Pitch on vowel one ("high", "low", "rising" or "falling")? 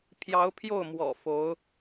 rising